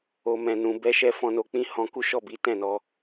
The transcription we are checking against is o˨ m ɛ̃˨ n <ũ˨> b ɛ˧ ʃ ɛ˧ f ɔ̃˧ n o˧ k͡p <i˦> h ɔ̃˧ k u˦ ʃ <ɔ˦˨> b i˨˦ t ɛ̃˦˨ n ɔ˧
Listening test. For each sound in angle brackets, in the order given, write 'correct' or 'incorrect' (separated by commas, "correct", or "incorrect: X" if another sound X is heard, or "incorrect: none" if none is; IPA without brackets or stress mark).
correct, incorrect: ĩ˦, correct